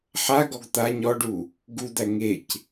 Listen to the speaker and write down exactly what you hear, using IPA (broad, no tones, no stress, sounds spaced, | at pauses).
ħ a ɡ ɔ ɡ t̪ a ɲ ɔ ɖ u | ɡ u d̪ æ ŋ e c